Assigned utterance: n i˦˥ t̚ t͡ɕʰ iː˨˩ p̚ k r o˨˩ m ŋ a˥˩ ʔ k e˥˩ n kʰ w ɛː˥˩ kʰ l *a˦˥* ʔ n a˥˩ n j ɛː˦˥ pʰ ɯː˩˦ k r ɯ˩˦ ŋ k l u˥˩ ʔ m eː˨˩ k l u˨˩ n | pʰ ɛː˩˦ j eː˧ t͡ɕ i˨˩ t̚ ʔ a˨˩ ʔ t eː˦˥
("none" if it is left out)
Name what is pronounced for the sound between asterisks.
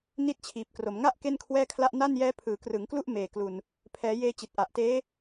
a˥˩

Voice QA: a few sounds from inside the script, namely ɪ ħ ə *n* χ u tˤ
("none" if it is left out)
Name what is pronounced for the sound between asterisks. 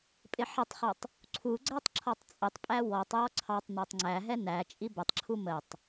tˤ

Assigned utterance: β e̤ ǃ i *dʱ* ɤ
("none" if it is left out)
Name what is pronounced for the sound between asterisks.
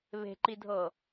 dʱ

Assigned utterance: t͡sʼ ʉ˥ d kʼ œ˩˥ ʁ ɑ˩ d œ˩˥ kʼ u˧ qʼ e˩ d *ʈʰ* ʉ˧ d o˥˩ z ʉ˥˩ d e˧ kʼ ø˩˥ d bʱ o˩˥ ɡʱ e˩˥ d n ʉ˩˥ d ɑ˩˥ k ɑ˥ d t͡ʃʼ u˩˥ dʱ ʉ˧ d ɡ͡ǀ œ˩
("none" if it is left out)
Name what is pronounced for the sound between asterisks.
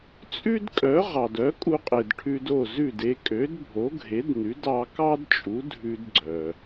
ʈʰ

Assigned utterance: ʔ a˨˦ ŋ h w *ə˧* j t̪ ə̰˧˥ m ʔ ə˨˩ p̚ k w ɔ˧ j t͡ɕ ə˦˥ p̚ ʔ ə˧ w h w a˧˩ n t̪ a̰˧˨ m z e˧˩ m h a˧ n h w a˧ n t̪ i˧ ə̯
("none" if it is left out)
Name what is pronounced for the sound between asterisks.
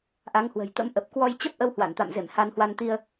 ə̤˨˩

